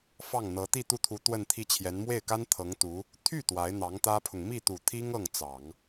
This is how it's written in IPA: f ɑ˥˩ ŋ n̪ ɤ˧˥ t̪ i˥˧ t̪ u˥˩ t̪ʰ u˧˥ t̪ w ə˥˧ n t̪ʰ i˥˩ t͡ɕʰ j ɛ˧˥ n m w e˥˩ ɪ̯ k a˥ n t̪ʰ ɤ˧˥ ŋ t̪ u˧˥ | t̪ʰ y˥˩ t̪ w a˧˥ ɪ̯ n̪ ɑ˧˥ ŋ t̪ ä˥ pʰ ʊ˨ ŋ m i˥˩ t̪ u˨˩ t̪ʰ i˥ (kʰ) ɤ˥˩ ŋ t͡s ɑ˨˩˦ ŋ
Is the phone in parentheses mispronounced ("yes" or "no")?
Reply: yes